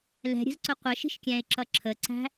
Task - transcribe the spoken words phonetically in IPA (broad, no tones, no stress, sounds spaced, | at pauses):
l ɛ̤ ɾʲ ə̤ z ǀ ʊ qʷ ə ʃ i̤ ʃ kʲ æ̃ ɪ̯ ǁ ʌ ǁʰ ə ǀ æ̤